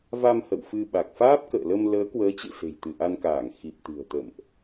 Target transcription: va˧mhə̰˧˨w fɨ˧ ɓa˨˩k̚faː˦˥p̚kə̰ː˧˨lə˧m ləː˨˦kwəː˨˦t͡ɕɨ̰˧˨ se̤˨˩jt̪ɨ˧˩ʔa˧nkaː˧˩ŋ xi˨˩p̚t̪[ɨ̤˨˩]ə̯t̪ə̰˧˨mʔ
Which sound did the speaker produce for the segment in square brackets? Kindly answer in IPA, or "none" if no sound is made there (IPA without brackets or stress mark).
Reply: ɨ̤˨˩